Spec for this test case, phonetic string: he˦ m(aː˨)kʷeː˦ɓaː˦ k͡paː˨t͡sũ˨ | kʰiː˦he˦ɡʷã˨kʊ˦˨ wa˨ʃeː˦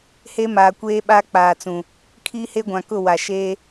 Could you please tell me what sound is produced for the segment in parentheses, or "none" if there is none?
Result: aː˨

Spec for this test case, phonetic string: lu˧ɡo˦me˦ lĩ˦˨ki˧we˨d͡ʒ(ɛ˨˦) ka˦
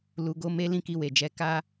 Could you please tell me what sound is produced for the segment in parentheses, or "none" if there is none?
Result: ɛ˨˦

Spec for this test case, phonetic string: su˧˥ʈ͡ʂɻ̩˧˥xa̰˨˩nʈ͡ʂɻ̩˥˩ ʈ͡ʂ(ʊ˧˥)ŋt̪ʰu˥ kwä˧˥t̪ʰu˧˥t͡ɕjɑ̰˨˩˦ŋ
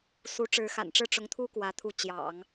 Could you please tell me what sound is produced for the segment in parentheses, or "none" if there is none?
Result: ʊ˧˥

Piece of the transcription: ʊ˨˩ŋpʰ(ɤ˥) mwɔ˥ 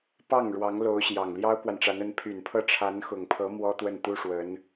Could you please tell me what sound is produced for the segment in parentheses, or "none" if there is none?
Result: ɤ˧˥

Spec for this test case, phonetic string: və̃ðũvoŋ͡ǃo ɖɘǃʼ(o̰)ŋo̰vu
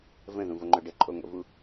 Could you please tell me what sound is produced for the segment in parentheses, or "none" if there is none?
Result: o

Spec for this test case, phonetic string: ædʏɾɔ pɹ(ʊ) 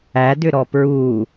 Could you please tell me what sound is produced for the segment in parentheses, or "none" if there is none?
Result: u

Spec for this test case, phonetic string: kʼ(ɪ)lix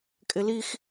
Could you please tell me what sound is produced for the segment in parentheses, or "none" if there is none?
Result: ɪ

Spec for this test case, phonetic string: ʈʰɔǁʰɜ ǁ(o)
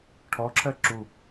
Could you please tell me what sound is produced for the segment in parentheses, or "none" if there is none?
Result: u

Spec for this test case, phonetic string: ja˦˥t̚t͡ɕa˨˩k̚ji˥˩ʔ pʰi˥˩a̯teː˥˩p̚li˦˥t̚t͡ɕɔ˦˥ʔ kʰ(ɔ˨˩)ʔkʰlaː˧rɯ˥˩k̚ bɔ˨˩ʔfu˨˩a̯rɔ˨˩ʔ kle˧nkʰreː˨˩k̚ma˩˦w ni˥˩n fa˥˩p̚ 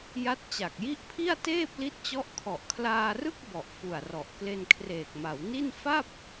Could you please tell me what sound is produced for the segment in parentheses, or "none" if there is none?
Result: ɔ˨˩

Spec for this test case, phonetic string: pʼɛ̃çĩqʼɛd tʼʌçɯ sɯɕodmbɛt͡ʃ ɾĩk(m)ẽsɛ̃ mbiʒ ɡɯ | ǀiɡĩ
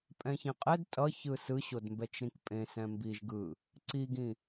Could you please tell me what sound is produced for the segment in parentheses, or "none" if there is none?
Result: pʼ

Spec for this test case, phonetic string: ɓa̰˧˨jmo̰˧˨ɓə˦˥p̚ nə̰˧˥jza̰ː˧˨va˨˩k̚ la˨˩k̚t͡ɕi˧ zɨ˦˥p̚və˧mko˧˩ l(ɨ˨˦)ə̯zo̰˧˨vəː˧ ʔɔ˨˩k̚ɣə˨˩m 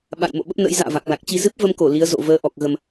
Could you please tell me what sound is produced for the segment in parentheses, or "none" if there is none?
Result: i˨˦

